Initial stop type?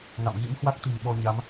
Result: plain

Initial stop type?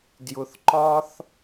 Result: plain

